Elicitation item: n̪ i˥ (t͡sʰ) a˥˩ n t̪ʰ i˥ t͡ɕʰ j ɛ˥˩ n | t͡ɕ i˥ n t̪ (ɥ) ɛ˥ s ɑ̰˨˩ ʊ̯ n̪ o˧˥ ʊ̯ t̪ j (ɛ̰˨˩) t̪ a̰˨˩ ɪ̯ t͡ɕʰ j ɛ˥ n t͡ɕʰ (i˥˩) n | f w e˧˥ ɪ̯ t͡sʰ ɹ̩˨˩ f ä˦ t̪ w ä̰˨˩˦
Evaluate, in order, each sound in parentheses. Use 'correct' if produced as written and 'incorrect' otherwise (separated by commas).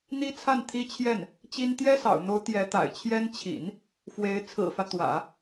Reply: correct, incorrect, incorrect, incorrect